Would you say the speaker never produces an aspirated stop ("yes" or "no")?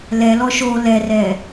yes